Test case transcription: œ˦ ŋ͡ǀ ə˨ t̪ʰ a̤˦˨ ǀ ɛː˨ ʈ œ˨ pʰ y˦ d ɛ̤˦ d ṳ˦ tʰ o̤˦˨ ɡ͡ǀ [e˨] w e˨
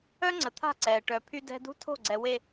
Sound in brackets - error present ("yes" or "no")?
yes